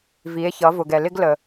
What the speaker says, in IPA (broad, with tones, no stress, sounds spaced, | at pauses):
v i˩˧ e̯ ç ʌ˩˧ v ʊ˩ ɡ ɛ˩ l ɪ˥ ɡ l ə˩